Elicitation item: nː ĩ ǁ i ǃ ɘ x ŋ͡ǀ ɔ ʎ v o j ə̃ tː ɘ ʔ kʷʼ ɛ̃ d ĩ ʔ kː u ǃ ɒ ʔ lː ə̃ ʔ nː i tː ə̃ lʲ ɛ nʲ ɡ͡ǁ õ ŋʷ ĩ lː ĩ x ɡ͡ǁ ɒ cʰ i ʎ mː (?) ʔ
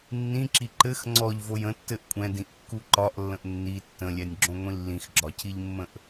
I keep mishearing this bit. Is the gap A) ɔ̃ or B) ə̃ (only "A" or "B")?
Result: B